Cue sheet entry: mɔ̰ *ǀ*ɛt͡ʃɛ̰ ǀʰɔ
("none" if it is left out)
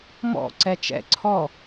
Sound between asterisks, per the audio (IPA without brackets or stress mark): ǀ